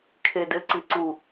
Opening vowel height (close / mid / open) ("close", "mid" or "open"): mid